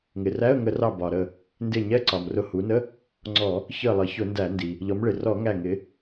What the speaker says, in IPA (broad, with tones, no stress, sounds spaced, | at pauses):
ŋ ɪ˩ r æ˧˥˧ ə̯ ŋ ə˧˩˧ r ɑ˧˩ b ɒ˩ ɾ ə˧˩ | n d ɪ˧˩ ɲ ɛ˧˥˧ ǀ ɒ˩ m r ʊ˧˩ h u˩˧ n ə˧˥˧ | ŋ͡ǀ ɔ˧˩˧ | ç ə˧˩ lˠ ʌ˩˧ ç ʊ˧˩˧ n d æ˧˩˧ n d i˩ | ʎ ɔ˩˧ m ɭ ɪ˩ r ɔ˧˩˧ ŋ æ˧˩ ŋ ɪ˩˧